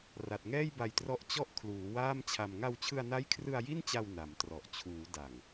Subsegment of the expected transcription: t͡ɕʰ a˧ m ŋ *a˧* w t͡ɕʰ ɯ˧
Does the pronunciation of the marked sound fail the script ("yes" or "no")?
no